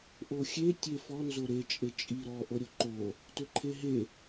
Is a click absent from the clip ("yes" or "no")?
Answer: no